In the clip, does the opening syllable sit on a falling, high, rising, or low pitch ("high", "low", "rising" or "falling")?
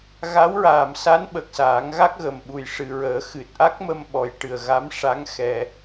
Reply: rising